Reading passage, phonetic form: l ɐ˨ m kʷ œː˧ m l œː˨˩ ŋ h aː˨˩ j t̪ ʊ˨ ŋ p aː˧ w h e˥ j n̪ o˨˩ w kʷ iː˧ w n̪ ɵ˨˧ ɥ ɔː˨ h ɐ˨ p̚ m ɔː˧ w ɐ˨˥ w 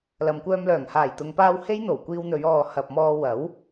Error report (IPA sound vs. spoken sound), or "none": none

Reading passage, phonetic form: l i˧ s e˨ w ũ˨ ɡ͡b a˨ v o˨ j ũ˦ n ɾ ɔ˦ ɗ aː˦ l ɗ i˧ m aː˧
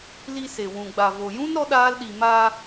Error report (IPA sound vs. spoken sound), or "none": none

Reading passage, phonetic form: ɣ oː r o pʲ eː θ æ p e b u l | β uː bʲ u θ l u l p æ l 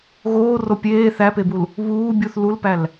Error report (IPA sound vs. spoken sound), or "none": none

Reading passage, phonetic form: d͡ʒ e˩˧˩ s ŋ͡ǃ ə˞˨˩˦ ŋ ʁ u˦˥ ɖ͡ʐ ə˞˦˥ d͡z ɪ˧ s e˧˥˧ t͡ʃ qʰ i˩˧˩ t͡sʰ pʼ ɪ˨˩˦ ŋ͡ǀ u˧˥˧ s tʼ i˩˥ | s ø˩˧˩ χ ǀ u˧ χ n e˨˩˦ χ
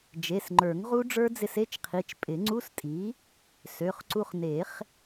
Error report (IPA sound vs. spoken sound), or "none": t͡sʰ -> t͡ʃ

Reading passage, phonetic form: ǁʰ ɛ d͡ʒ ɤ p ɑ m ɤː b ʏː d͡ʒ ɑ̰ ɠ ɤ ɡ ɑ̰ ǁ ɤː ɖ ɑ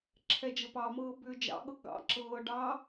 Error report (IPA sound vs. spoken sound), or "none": none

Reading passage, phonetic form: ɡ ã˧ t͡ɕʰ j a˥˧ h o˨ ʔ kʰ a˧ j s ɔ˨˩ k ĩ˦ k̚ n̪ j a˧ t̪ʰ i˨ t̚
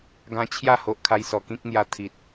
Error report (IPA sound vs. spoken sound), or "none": none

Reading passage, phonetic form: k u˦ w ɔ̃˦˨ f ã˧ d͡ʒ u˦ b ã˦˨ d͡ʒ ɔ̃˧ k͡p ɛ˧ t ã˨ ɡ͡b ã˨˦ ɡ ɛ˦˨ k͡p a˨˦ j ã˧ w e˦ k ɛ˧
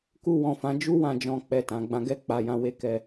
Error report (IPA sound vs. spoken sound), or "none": b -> w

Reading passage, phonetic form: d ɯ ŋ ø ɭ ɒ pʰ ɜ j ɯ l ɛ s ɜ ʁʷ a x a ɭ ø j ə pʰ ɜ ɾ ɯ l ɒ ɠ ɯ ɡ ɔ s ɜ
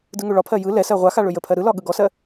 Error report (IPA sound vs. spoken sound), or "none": none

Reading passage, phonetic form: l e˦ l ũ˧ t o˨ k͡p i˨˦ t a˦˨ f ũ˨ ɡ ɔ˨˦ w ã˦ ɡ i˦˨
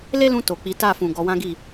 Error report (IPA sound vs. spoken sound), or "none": none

